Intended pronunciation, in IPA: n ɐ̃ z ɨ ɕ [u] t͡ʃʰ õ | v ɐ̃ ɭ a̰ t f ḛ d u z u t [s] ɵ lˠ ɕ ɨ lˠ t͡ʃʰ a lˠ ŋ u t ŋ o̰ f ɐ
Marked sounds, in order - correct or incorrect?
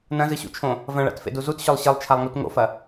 incorrect: ṵ, incorrect: ɕ

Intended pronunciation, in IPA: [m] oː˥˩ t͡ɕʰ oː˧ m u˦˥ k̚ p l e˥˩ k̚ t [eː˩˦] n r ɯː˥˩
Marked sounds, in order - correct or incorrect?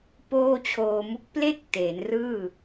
incorrect: p, correct

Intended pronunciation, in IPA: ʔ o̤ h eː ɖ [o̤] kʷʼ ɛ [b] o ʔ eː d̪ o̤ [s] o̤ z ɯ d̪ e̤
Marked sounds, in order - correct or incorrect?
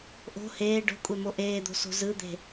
correct, incorrect: m, correct

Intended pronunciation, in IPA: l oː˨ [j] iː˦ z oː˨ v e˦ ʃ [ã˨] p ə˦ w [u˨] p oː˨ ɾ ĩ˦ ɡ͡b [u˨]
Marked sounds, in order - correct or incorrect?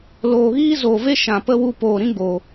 incorrect: ɣ, correct, incorrect: u˧, incorrect: o˨

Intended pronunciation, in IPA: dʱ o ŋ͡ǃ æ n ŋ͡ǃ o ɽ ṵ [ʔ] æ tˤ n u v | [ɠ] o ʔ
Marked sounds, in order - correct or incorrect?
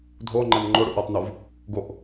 correct, incorrect: ɡ

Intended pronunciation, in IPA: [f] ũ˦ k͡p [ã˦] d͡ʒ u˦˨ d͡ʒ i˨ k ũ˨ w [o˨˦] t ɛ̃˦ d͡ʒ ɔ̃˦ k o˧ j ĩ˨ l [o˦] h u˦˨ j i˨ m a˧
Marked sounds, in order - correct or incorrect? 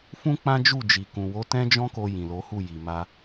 correct, correct, correct, incorrect: o˨˦

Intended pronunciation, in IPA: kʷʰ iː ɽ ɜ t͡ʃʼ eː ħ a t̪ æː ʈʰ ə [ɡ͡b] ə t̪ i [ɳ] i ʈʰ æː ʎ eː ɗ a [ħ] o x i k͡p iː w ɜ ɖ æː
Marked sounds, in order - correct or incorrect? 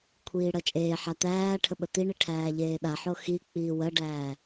incorrect: ɓ, correct, correct

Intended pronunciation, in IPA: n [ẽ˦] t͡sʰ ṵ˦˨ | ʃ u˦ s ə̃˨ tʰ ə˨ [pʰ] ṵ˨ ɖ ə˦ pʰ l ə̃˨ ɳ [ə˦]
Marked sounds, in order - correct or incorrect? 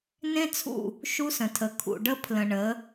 correct, incorrect: kʰ, incorrect: ə˨˦

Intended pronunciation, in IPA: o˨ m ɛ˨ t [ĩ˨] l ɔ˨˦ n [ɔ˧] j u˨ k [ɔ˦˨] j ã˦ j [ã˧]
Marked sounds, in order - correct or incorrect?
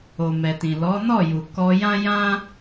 correct, incorrect: ɔ˦˨, incorrect: ɔ˧, incorrect: ã˦

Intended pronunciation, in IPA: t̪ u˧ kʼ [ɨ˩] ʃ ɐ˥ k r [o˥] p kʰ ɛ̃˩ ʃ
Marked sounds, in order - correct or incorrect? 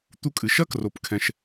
correct, incorrect: o˩

